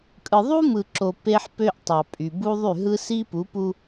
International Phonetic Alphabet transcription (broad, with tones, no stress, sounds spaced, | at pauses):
kʼ ɯ˨ ðˤ u˦ m ɯ˨ ǁ o˨ p e˦ ħ p ø˦ ʔ tˤ ɑ˨ pʼ y˨ b u˦ ðˤ y˦˨ ɦ ɯ˦ s i˦ p u˨˦ p u˦